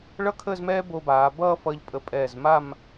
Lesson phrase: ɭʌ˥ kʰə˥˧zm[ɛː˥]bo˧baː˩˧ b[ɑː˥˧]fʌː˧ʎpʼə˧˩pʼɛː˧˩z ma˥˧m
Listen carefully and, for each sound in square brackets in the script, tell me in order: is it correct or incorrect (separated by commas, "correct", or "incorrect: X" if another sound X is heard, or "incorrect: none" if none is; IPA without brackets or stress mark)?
correct, incorrect: ʌː˥˧